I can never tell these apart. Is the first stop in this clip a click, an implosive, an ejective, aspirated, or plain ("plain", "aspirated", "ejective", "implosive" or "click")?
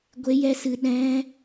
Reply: plain